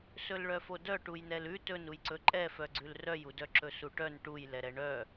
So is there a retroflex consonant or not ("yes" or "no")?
yes